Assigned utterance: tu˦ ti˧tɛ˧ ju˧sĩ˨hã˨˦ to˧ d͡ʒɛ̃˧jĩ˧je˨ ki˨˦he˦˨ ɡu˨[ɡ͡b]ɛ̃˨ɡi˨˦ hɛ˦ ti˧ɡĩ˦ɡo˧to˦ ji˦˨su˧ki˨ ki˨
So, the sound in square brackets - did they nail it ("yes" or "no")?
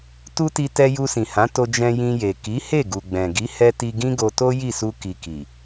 yes